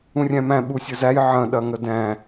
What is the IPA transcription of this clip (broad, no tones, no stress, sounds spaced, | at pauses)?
ũ rʲ æ̃ m æ̃ ɓ u sʲ ə z æ j ʕ ɐ̃ ɗ ɐ ŋ ə d æ̃